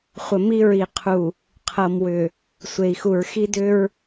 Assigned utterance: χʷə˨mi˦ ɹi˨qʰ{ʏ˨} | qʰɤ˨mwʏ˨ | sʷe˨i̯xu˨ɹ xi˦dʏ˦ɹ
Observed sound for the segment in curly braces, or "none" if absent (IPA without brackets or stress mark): u˨